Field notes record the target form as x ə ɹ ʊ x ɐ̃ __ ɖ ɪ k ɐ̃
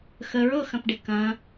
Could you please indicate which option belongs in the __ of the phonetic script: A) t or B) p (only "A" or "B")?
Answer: B